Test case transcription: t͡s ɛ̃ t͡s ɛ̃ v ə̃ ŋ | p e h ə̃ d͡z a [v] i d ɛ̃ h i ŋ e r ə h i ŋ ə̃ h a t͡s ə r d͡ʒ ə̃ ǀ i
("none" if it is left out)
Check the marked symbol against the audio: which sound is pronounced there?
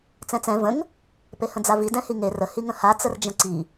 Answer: v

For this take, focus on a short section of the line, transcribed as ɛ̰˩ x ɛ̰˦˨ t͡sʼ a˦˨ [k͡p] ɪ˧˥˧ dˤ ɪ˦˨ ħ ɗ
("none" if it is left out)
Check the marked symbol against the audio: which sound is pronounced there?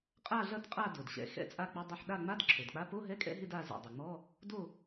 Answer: k͡p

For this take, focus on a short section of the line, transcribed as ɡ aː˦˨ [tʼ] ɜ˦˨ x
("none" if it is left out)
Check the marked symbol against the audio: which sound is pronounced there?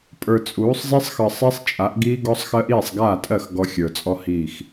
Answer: tʼ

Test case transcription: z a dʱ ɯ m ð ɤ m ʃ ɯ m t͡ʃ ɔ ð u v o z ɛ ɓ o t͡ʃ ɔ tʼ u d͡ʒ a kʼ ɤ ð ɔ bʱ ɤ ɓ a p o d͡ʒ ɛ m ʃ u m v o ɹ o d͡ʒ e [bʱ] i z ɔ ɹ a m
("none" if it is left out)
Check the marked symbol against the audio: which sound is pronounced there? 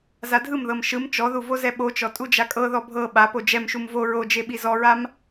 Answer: ɓ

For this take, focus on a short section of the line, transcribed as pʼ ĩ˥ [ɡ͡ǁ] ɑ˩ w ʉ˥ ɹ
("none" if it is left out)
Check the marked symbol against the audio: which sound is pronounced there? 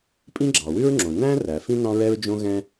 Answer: ɡ͡ǁ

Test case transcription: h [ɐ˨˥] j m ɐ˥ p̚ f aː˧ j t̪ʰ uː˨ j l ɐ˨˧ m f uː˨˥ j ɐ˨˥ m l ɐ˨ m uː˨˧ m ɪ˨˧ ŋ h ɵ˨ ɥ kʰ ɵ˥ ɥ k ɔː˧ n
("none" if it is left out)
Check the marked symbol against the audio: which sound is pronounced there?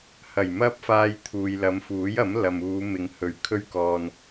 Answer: ɐ˨˩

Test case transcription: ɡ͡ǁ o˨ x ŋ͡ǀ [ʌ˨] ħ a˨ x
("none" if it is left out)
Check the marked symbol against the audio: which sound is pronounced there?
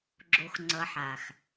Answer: ʌ˨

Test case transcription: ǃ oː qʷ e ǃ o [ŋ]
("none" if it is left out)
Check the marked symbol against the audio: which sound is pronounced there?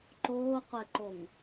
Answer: ŋ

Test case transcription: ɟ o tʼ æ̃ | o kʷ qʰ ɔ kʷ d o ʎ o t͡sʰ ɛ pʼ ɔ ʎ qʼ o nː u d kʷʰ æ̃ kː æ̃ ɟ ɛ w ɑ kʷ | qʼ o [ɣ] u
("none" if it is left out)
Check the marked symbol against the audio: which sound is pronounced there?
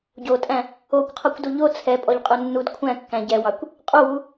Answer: w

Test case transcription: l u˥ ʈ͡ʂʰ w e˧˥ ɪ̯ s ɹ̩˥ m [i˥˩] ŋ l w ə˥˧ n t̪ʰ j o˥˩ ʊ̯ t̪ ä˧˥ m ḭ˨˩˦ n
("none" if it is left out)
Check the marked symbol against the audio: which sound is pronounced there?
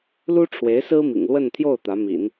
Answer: ḭ˨˩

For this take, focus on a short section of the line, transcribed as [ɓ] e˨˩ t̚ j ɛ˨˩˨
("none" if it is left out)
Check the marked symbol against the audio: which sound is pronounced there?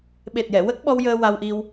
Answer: ɓ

